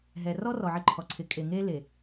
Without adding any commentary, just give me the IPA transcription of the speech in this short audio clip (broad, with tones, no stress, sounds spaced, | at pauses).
ɦ ɛ˨ r ɔ˦ r ɔ˨ ʕ ɪ˦ ǃʰ ɔ˨ ǀʰ ɪ˨ kʼ e˨ ŋ e˦ l e˨